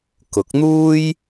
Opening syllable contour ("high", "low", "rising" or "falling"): rising